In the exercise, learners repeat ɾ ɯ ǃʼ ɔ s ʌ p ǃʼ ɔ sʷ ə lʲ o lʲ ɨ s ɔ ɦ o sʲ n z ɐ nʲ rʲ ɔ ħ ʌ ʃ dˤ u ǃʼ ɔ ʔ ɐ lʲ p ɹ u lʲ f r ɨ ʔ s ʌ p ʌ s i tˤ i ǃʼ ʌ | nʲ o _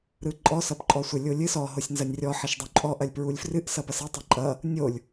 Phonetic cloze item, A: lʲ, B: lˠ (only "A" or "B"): A